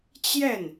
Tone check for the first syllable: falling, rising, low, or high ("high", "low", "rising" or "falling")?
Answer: falling